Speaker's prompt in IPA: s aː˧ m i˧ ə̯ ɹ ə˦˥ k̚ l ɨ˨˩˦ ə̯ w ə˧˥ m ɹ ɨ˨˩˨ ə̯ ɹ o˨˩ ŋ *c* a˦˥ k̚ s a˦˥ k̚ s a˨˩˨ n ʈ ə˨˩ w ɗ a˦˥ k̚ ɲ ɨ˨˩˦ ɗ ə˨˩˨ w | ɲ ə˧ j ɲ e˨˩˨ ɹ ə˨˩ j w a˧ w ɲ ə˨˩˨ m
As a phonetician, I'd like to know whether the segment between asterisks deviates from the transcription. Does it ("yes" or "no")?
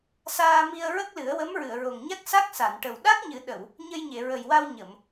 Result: yes